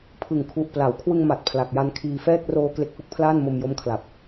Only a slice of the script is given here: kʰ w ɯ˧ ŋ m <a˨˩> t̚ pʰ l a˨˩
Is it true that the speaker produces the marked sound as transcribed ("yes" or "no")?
yes